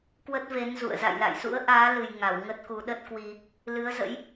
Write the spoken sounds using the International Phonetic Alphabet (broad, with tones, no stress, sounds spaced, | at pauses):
k w ə˦˥ t̚ v e˨˦ n z ṵ˧˨ ə̯ z a̰˧˨ j l a̰˧˨ j s ṵ˧˥ ə̯ ʔ aː˨˦ l ɨ˨˩ j ŋ a˧˩ w ŋ ə˦˥ t̚ k u˨˦ ɗ ə˦˥ t̚ k w i˧ | l ɨ˨˦ ə̯ z ə̰˧˥ j